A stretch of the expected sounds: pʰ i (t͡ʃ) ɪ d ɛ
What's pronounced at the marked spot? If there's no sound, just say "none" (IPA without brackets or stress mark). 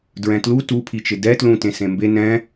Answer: t͡ʃ